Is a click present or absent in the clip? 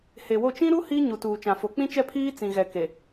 absent